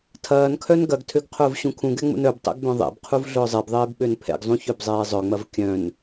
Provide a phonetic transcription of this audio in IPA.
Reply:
tʰ ɐː n kʰ œ n ɡ ɐ ɡ tʰ ø ɡ qʰ ʊː v ɕ ũ kʰ ũ ɡ ɛ ŋ͡m ṵ n œ b tˤ ɛ̰ ɡ b œ̃ ðˤ ḛ b qʰ u v ɮ ʊː zˤ e b ðˤ eː b ɓ ø n pʰ ɛ̰ ɡ zˤ ũ ç œ b zˤ eː zˤ œ ŋ͡m ɐ v kʲ œ̃ n

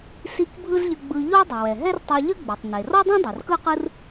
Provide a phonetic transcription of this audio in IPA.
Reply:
s i˧ k bʱ ɯ˥ z ʎ ə˧ ɡ͡b ɯ˧ ʎ o˥ dˤ ə˩ w ɛ˩ ɦ ɛ˥ r tˤ ɛ˧ ʎ ə˥ ɡ͡b e˩ tˤ n e˩ r ɔ˥ dˤ ẽ˥ dˤ o˩ r k ɯ˥ q ɯ˥ r

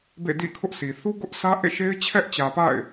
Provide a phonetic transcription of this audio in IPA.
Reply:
b ḛ˦˨ d ḭ˦˨ kʰ ʊ˦ ʔ s i˨ θ u˦ ɡ ʊ˦ ʔ sʰ ä˦ ʔ ḛ˦˨ ʃ e˦ ɪ̯ t͡ɕʰ ɛ˦ ʔ t͡ɕ ä˨ p a̰˦˨ ɪ̯

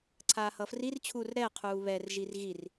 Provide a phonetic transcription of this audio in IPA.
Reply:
ǀʰ aː h ʌː f r i r t͡ɕʰ uː r ɾ ɛ qʰ uː β ɛ r ʒ i r ɣ i r

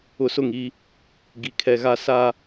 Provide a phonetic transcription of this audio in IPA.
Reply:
ʊ˨ s ʊ˦˨ ŋ i˦ | ɡ i˨ kʰ ɛ˨ ɣ a˦ s a˦

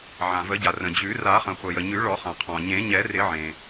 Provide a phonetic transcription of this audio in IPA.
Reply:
ʕ ã˩ v ə˨˩˦ ɟ a˩ r ə̃˩ d͡ʑ ʉ˨˩˦ r a˨˩˦ χ ə̃˩ χʷ ə˩ j ə˩ ɲ ʉ˨˩˦ ɭ ɔ˨˩˦ χ ã˩ qʰ ɔ̃˩ ɲ ẽ˨˩˦ ɲ ɛ˨˩˦ r ɪ˨˩˦ ʕ ẽ˩

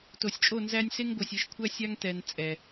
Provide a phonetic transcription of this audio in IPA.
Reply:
t o˨ sʲ t͡ʃʼ o˦˨ n z æ˦ nʲ s e˦ ŋ ɡʷ œ˨ sʲ e˨˦ ʃ kʷʰ æ˦ sʲ a˦ ŋ t ɛ˨ n t͡sʼ ɛ˨

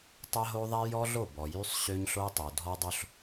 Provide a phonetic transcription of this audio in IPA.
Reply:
tˤ ɛ˦ ɦ o˦ ðˤ ɛ˦ j ɔ˦ ɮ o˦˨ b ɔ˨ j y˦ sˤ ɕ ø˦ ɲ ɬ o˦ tˤ o˨ dʱ ɔ˦ dˤ o˦ ɬ

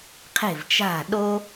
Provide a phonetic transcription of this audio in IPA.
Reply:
qʰ e̤˥˩ v t͡ʃ a̤˥˩ ɗ o˥

